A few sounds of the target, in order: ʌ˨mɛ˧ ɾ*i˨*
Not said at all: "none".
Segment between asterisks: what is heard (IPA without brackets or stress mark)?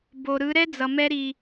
i˨